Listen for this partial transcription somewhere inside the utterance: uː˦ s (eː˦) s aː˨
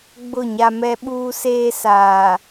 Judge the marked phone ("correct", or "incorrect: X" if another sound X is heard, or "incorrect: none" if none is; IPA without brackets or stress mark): correct